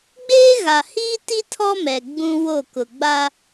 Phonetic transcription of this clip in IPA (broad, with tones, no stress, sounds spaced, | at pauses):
ɡ͡b eː˦ ɣ a˨ h iː˦ t i˦ tʰ ɔ˦ m ɛ˨ ɡ͡b ũ˦ w o˦˨ k ʊ˨ ɡ͡b a˦